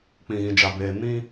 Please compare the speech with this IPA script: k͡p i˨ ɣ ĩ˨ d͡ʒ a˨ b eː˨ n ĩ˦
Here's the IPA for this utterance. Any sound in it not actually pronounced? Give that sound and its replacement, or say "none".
i˨ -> ĩ˨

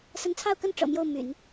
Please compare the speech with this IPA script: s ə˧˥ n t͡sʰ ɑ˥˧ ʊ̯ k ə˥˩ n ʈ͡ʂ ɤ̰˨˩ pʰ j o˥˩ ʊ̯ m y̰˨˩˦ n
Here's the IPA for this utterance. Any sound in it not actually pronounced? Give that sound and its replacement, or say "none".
pʰ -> m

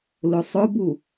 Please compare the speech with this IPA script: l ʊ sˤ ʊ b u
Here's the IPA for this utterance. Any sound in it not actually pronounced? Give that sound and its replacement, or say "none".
none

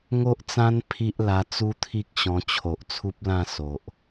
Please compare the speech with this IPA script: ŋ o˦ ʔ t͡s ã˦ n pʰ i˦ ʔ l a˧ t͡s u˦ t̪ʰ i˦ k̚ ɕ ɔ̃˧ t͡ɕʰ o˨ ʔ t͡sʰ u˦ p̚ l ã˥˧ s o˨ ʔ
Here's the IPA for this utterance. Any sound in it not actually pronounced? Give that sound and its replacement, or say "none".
none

